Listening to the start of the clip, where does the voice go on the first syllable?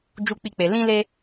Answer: high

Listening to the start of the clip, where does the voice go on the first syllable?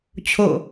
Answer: falling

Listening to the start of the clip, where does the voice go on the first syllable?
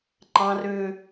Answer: high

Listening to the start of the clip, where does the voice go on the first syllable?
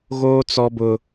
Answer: high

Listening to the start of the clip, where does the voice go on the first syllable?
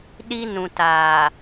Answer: high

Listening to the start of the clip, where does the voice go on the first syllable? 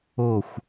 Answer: falling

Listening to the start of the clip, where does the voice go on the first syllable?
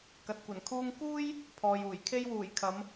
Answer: low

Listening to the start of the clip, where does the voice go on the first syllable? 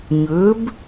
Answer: rising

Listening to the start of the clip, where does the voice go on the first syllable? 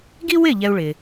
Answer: high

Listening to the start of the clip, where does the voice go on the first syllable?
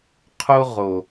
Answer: high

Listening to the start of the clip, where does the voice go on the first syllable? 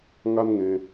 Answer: high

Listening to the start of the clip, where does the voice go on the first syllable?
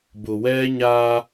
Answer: low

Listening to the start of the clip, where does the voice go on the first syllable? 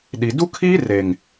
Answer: low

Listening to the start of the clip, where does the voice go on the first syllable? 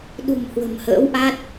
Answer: low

